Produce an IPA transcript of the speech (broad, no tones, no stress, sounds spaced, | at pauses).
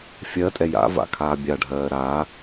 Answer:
fʲ ɜ tʼ ɛ j a̰ v a̰ kʰ aː bʲ a ɖʱ ɜː ɾ a